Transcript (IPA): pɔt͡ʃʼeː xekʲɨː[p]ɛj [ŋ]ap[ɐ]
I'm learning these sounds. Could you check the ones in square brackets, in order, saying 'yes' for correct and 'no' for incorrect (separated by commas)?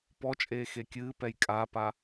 yes, no, no